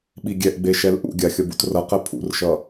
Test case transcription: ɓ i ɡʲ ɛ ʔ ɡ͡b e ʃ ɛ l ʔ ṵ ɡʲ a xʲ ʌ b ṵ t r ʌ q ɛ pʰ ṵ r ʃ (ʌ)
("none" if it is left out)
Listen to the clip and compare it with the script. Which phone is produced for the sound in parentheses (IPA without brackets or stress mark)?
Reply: ʌ